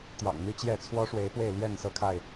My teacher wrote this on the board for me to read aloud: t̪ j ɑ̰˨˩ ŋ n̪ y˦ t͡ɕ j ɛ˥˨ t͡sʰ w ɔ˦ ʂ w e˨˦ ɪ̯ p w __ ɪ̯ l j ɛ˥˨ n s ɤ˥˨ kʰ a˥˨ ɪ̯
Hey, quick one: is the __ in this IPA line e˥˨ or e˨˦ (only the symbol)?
e˥˨